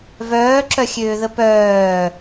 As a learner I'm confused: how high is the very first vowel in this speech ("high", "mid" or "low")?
mid